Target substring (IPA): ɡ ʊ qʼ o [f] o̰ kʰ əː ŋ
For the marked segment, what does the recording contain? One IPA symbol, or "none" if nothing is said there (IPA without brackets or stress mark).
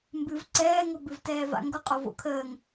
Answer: v